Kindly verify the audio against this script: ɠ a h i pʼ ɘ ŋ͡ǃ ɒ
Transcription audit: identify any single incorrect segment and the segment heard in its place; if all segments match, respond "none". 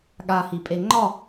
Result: ɘ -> e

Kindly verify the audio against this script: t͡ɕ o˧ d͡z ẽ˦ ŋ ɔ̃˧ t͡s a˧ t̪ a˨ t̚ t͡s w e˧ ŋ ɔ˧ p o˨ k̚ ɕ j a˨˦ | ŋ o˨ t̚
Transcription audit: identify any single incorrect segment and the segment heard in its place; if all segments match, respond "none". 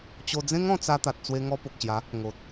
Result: none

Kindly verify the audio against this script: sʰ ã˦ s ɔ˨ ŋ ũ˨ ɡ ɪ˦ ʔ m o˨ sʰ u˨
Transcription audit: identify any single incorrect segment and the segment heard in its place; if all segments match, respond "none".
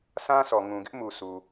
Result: o˨ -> u˨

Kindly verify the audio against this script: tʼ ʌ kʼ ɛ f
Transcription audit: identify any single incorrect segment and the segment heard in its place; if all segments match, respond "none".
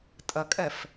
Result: ɛ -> ɜ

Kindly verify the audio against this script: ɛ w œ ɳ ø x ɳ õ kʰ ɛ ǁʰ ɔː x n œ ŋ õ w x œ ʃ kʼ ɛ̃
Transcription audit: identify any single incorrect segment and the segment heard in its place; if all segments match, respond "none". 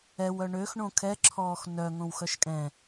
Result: none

